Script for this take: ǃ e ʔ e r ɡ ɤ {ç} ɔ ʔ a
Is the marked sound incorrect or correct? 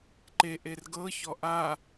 correct